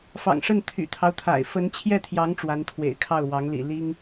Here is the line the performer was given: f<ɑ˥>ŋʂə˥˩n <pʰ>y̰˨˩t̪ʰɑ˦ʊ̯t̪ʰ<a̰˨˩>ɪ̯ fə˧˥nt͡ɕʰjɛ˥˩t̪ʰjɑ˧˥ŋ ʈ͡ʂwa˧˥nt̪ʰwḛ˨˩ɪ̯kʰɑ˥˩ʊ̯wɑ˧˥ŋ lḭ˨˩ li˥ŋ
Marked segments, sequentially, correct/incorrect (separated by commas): incorrect, incorrect, correct